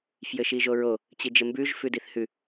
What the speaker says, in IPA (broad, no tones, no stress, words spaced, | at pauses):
fjɘʃiʒoɹo | t͡ɕid͡ʒɘmbʉʒ fʉdiθhʉ